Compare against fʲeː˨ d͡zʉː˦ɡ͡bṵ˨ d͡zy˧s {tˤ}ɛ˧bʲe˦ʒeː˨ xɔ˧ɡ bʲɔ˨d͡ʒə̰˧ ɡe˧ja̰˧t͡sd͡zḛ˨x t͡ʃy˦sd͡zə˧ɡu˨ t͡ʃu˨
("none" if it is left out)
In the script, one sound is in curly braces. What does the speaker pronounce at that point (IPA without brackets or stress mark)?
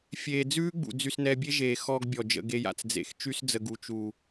n